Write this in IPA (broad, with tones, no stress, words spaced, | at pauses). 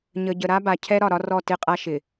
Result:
ɲə˨ɟə˨ ɾa˦ba˨cʰɛ˦ɾɒ˨ ɾɒ˦rɔ˦˨ tɪ˦˨qʼa˦ ʃɪ˨